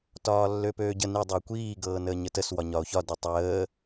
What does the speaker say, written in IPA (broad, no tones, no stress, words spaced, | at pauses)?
tɒːlːøpøːɟə ni dˤəe̯kʷiː ɡɤːnəːɲətəs wɒɲɒo̯çɒ dɤtˤəː